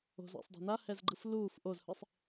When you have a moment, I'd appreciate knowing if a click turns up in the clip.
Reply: yes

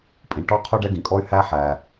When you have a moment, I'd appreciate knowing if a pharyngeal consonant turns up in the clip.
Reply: yes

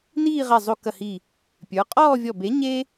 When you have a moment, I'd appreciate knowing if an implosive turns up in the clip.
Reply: no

